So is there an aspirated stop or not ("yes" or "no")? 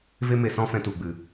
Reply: no